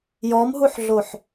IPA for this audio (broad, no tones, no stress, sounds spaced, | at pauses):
j ɔ m ɦ u ħ ɮ o ħ